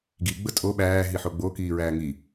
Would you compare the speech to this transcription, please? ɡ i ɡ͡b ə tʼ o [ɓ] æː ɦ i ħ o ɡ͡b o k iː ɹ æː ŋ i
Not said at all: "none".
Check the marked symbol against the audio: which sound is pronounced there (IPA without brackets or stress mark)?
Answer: ɓ